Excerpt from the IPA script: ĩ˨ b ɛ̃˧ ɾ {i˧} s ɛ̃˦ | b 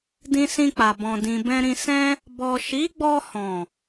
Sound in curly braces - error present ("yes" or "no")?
yes